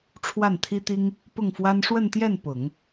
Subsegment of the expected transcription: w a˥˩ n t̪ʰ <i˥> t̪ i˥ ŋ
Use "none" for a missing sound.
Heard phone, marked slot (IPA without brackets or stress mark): i˥